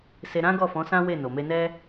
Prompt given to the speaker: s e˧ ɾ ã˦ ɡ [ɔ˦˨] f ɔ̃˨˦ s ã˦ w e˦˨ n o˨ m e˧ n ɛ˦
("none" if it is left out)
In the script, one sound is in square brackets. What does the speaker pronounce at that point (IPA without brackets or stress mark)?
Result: ɔ˦˨